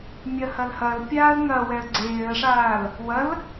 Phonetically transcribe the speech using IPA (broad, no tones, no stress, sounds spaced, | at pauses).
mʲ ɐ h ɐ l h ɐ l pʲ aː ə̯ ŋ ɐ w ɛ ə̯ ɡ͡ǀ eː ə̯ ʂ aː l | w ɐ l